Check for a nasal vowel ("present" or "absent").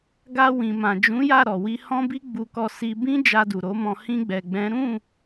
present